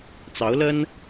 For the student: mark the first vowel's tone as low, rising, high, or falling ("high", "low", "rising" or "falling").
rising